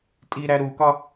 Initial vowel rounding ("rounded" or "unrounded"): unrounded